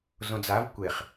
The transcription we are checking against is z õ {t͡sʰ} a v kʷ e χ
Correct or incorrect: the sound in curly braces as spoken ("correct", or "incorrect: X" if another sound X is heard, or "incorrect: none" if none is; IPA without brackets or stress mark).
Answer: incorrect: d͡z